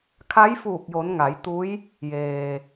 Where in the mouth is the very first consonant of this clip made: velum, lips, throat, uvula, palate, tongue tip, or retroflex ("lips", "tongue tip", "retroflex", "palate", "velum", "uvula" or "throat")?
velum